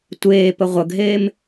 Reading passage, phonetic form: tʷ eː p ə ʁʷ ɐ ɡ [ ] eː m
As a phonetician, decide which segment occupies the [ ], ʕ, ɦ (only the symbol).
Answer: ɦ